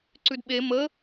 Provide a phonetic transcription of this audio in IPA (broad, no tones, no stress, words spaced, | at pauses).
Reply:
ǀʉdɓe mə